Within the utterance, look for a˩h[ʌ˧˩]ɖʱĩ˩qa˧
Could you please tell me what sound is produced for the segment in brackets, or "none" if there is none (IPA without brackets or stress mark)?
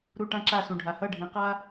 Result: ʌ˧˩